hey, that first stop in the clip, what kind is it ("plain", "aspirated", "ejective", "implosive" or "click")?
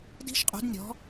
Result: plain